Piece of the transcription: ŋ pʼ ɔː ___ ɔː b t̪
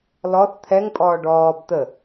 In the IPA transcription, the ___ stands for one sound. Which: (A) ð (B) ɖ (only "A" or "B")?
B